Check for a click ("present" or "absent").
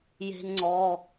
present